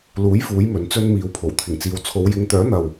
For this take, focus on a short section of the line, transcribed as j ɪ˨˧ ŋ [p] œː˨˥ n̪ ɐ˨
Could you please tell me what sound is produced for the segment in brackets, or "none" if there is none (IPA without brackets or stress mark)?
t̪